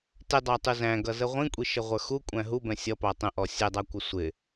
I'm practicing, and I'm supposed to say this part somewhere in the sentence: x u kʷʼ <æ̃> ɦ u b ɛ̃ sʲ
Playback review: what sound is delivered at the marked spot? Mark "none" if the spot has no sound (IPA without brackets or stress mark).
æ̃